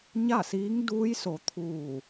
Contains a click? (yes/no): no